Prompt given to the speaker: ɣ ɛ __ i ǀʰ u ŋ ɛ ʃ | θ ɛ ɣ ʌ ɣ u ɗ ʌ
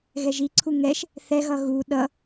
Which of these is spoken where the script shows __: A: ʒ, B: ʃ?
A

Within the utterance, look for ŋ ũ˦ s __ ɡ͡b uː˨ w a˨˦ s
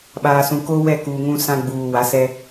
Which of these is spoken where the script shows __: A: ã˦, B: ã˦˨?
A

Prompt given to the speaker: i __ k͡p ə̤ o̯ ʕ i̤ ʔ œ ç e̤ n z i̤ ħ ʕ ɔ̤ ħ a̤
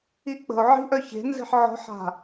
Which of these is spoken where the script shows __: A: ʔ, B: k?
A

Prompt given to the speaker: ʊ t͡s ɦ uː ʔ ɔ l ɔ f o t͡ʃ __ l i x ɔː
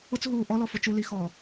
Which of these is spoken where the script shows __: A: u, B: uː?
A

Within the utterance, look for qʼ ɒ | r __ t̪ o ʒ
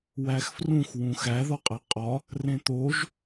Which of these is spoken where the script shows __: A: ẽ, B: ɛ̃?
A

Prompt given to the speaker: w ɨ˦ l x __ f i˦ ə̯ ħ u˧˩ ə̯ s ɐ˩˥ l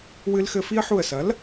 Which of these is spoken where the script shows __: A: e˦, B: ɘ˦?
B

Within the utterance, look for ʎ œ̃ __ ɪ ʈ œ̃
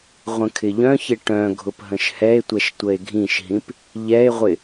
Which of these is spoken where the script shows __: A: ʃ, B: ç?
B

